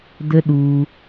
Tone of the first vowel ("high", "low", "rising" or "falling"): high